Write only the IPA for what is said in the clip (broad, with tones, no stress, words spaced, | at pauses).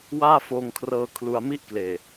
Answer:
waː˥˩foː˧ŋkʰrɤː˧ kʰlu˧a̯mi˥˩ʔkleː˨˩